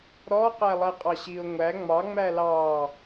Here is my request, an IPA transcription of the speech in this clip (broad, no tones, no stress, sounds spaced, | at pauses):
ɾ ɔ q æ lˠ ɛ qʼ ɑ ɕ i ʊ̯ ŋʷ æ ŋ͡m ɑ ŋ͡m æ l ɑ